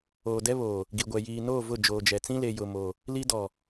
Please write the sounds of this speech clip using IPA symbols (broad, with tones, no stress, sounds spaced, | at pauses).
oː˨ d ɛ˦ β oː˨ | ɡ i˨ ɡʷ ɛ˨ j iː˨ n oː˦˨ v ʊ˦˨ d͡ʒ oː˨ d͡ʒ ɛ˨ t͡s ĩ˦ l e˨ j ʊ˨ m oː˨ | l i˦ d ɔ˨